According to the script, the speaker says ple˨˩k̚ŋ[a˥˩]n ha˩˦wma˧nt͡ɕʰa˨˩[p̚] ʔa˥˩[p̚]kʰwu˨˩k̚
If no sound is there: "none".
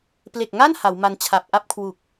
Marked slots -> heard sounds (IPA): a˥˩, p̚, p̚

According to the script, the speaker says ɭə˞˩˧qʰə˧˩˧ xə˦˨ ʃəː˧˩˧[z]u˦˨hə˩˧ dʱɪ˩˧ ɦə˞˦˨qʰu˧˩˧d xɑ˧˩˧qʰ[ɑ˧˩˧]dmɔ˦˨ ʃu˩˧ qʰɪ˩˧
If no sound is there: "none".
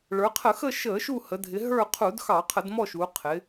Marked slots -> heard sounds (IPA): ʃ, ə˧˩˧

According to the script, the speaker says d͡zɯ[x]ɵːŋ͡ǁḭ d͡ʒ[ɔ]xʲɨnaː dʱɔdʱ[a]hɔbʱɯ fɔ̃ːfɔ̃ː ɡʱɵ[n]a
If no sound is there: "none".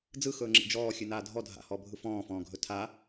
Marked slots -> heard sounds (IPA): x, ɔː, a̰, tʰ

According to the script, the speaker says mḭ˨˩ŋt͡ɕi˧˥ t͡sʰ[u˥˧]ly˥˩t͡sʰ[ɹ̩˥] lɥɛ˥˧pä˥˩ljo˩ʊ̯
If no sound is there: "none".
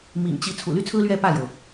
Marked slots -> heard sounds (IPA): ṵ˨˩, ɹ̩˥

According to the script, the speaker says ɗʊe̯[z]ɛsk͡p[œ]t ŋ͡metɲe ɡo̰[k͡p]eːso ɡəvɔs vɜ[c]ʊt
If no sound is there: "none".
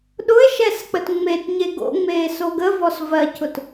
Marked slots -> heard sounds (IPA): ʃ, ə, ŋ͡m, c

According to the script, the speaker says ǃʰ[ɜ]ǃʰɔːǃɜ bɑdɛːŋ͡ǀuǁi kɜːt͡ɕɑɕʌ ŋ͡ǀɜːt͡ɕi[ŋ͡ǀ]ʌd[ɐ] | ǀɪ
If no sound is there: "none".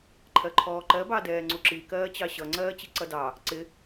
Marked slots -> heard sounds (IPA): ɜ, ǀ, ɑ

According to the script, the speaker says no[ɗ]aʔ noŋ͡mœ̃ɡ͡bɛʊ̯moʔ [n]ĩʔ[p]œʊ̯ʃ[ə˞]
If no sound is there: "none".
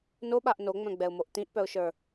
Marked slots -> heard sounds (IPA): ɓ, t, p, ə˞

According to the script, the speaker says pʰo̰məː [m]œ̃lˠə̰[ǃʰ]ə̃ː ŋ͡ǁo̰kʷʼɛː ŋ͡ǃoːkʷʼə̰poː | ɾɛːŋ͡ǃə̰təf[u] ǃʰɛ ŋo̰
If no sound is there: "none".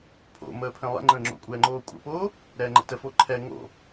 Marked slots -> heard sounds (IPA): pʰ, ŋ͡ǃ, o

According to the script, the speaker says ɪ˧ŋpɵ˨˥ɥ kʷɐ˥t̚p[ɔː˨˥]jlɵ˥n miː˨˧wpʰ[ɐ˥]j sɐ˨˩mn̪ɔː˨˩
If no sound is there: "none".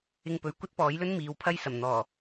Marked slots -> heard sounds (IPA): ɔː˨˥, ɐ˥

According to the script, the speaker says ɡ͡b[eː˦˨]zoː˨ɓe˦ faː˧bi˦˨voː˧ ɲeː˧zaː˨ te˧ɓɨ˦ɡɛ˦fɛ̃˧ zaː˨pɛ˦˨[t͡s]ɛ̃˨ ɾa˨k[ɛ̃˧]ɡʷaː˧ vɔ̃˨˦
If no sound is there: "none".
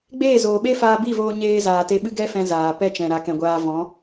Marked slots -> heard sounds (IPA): eː˦˨, t͡ʃ, ɛ̃˨

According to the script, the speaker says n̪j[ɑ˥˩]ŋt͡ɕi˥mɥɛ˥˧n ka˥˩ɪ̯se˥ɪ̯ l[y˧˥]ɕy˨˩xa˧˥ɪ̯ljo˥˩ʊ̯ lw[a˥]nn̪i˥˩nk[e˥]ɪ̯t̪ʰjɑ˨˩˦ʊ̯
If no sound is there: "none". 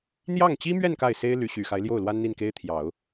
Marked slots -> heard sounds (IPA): ɑ˥˩, y˧˥, a˥, e˥

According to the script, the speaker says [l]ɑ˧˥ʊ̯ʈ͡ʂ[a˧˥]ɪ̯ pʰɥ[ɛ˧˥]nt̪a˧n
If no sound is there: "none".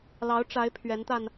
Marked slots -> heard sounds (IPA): l, a˧˥, ɛ˧˥

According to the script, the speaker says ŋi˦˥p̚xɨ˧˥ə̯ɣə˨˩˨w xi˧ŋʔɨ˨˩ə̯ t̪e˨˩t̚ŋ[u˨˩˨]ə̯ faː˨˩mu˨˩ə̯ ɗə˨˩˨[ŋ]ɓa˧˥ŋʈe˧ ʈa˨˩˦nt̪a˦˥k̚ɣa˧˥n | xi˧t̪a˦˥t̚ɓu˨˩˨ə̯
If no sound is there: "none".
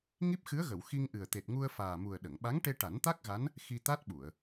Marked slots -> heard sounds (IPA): u˧, ŋ

